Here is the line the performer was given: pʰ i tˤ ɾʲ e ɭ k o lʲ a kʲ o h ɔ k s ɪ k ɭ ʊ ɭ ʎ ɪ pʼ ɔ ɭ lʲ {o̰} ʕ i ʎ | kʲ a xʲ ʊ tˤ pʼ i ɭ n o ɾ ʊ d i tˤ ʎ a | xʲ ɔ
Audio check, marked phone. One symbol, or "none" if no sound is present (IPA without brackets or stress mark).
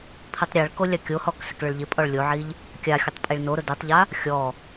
o